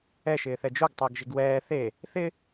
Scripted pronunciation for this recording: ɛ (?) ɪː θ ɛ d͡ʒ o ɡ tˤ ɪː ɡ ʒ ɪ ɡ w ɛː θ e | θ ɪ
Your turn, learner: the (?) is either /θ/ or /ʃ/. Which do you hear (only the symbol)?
ʃ